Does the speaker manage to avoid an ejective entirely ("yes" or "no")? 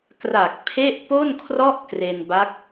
yes